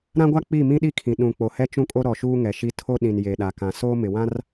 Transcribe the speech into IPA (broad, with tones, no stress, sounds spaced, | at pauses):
ɾ ã˦ ɡʷ a˦ k͡p i˦˨ m ĩ˦ ɗ i˦ kʰ ĩ˨ ɗ ũ˨ k͡p o˨ h ɛ˦ t͡ʃ ũ˦ kʼ o˦ ɾ ɔ˨ ʃ uː˦ ŋ ɛ˨ ʃ i˦ tʰ o˦ ɗ ĩ˨ n j e˨ ɗ a˨ k ã˨ s oː˦ m ɪ˨ w ã˦ r